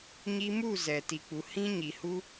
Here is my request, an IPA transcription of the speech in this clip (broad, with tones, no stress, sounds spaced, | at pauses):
ɲ i˧ m u˦˨ z ɛ˨ t i˨ k͡p u˨ h ĩ˧ ɲ i˨ h u˦